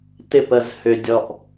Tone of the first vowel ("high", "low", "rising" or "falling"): high